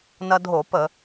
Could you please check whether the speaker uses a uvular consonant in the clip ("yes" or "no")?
no